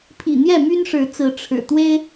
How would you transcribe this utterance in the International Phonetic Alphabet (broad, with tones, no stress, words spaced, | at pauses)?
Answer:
pʰḭ˨˩ n̪jɛ˥˨my˦nʂɻ̩˨˦t͡sɹ̩˨˦ ʈ͡ʂʰɻ̩˨˩t̪we˦ɪ̯